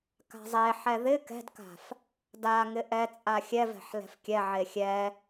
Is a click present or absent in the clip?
absent